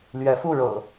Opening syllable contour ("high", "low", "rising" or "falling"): rising